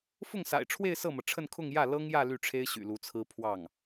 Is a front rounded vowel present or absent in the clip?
present